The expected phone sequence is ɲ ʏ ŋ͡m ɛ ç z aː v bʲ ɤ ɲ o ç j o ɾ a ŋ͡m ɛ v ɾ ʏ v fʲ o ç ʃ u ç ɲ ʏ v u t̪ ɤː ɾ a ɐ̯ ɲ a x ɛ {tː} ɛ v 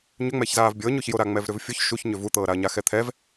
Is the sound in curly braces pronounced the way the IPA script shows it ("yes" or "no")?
no